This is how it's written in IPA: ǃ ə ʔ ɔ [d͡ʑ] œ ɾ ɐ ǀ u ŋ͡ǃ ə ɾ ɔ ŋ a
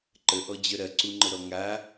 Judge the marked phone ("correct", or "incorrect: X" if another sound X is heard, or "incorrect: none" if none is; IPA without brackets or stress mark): correct